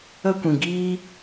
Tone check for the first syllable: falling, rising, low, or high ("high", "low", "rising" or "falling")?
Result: high